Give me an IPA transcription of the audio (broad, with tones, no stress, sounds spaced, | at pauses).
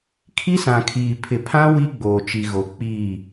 kʰ i˦ s ã˨ kʰ iː˨ pʰ ɪ˨ pʰ ã˦ w i˦ ɡ͡b oː˨ t͡ʃ i˨ ɣ o˨ k͡p iː˦˨